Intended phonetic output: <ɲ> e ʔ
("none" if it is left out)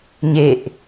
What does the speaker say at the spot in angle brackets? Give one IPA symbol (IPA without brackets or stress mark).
ɲ